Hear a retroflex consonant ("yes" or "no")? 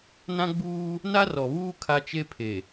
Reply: no